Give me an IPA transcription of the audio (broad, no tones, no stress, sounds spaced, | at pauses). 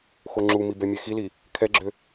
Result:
x o ŋ͡ǁ u m i b ɛ mʲ e x i l i | kʰ ɛ ɡ͡ǁ ø